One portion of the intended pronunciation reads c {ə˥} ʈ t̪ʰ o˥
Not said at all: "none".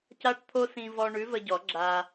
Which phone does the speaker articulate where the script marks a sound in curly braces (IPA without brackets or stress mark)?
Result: a˥